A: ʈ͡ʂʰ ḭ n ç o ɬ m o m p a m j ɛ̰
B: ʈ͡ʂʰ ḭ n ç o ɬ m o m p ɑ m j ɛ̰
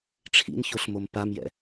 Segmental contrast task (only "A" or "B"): A